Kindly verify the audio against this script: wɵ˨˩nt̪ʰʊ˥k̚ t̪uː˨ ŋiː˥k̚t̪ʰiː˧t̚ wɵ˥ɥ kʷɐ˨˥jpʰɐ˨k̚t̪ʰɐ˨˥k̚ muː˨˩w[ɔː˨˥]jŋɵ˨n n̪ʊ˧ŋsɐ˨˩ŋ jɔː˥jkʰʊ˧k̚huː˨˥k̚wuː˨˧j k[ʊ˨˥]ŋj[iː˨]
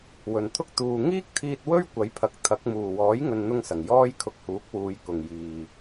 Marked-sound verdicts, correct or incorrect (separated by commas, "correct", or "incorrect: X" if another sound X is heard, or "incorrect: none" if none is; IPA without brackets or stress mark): correct, incorrect: ʊ˨, correct